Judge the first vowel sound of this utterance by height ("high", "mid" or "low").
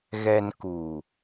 mid